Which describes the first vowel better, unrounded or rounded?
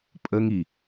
unrounded